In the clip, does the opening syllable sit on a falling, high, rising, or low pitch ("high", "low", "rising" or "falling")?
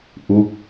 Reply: falling